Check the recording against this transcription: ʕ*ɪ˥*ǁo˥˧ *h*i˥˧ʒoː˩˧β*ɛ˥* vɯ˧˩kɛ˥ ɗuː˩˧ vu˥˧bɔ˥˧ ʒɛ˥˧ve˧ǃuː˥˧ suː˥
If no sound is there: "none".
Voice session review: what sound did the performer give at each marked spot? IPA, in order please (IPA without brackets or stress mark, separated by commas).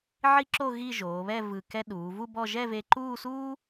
i˥, ɣ, ɛ˥˧